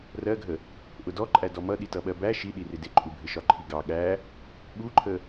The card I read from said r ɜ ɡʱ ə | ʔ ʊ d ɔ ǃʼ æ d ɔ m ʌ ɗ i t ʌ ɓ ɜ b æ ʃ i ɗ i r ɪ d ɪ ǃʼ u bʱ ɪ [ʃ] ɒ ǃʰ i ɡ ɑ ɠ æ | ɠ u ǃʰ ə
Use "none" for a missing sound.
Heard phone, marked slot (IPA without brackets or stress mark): ʃ